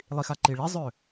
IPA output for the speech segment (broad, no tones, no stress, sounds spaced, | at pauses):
lˠ i x a ǃ i ɭ i zˤ ø